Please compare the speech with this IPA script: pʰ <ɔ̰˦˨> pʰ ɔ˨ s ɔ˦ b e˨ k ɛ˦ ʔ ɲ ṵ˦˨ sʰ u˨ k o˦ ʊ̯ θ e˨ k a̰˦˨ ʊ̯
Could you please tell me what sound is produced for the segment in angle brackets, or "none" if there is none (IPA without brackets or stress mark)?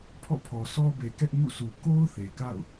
ɔ̰˦˨